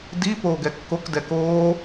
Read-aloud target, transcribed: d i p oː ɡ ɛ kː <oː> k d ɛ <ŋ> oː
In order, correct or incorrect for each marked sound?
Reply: incorrect: o, incorrect: k

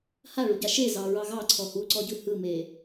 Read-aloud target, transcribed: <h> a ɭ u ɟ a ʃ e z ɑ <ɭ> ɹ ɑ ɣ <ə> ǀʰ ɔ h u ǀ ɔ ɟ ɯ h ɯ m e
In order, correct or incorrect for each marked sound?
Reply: correct, incorrect: none, incorrect: ɑ

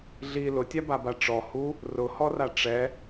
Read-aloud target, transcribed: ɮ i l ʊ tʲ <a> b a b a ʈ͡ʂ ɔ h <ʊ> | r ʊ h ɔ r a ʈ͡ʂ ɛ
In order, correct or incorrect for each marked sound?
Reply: correct, incorrect: u

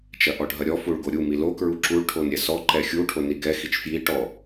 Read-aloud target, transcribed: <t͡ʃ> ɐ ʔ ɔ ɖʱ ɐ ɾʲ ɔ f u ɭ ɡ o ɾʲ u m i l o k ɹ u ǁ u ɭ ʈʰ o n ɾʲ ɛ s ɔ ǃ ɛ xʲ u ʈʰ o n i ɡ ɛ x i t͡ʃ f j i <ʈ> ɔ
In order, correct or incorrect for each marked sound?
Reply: correct, correct

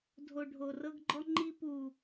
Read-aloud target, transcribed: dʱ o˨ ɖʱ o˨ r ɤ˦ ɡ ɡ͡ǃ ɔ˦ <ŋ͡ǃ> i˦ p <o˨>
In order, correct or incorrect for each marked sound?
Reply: correct, incorrect: u˨

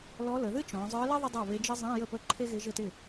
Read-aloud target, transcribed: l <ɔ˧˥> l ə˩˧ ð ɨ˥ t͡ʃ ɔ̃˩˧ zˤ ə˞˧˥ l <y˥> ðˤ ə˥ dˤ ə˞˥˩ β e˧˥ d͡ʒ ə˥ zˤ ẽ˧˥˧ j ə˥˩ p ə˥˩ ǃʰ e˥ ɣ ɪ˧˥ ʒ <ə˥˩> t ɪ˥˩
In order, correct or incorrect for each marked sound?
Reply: correct, incorrect: ɪ˥, correct

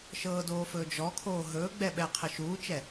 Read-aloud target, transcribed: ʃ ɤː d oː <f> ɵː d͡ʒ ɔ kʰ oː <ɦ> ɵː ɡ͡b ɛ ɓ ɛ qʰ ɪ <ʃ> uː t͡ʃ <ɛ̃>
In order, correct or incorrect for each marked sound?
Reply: correct, correct, correct, incorrect: ɛ

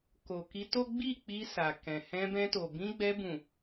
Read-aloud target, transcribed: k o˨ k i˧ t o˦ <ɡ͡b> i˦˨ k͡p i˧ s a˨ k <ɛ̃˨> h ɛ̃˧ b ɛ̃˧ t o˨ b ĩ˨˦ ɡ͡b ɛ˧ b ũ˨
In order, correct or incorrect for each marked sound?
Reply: correct, correct

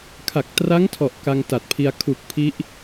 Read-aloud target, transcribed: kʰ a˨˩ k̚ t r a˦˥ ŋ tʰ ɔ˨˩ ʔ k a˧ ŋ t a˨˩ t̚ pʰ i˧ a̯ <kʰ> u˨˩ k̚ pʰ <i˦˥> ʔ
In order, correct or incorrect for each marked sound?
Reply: correct, correct

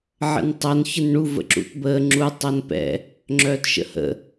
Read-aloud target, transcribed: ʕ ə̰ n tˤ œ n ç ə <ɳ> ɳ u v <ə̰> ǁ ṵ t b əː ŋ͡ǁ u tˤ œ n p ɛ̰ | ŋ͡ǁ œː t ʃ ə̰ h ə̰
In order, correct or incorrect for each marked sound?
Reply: incorrect: n, correct

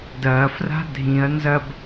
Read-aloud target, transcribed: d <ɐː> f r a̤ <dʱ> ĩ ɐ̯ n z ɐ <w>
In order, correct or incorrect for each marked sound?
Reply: correct, correct, incorrect: b

